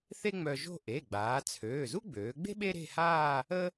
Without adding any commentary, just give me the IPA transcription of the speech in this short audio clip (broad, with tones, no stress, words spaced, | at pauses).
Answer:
θe˥ŋ͡mœ˧ʒo̤˥˧ ʔe˩˧˩ɡ͡baː˩˧ t͡sʰøː˩˧˩ zu˥ɡ͡bøː˩˧ɡ͡be̤˥ ɓe˥ɾe̤˥˧haː˥˧ | ə˥